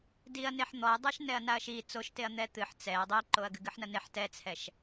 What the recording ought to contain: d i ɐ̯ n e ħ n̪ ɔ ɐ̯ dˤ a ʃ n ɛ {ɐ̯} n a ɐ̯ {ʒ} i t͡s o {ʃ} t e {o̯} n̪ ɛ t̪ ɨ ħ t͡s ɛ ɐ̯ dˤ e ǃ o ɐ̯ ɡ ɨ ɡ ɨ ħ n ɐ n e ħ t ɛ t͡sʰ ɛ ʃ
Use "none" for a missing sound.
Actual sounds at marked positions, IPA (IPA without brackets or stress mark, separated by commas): ɐ̯, ʃ, ʃ, ɐ̯